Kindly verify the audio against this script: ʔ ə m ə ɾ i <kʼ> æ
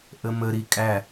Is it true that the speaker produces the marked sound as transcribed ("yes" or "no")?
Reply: yes